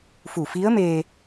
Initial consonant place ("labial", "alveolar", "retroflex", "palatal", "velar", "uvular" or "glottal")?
labial